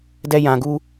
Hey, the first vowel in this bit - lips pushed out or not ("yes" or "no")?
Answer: no